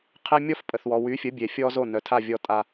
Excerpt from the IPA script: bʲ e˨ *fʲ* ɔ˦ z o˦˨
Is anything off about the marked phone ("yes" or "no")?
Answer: no